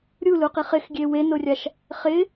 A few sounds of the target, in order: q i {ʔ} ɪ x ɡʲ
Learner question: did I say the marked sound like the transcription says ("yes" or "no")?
no